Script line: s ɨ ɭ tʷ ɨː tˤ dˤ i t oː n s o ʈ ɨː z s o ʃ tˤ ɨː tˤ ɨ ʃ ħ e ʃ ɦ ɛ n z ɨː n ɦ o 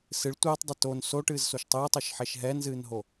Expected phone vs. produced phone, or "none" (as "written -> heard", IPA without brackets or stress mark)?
i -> ɨ